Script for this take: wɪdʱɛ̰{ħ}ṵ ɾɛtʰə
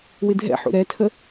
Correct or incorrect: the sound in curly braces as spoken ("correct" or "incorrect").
correct